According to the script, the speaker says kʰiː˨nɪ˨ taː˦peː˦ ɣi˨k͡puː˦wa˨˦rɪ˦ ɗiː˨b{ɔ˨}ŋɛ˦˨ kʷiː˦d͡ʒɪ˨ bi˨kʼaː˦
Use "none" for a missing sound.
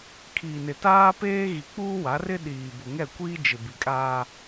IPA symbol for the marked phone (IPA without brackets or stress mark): ʊ˨